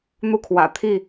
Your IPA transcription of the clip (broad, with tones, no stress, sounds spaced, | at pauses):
n̪ u˥˨ kʰ w ä̰˨˩ t̪ʰ i˥˨